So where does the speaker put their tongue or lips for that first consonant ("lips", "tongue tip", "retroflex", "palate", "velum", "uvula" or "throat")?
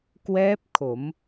velum